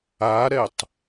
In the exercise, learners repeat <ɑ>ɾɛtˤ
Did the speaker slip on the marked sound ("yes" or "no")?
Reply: yes